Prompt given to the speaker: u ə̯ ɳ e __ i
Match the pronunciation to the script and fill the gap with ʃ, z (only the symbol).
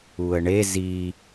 z